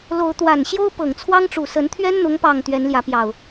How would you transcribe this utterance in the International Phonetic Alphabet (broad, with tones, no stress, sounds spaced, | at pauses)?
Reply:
l o˨˦ ʊ̯ t̪ w a˨˩ n ɕ j o˦ ʊ̯ p ɤ˨˩ ŋ t͡sʰ w ɑ˦ ŋ ʈ͡ʂ u˨˩ s ə˨˦ n t̪ʰ ɥ ɛ˦ n n̪ ʊ˨˦ ŋ p ɑ˨˩ ŋ t̪ ɥ ɛ˨˦ n l j ä˨˦ p j ɑ˨˩ ʊ̯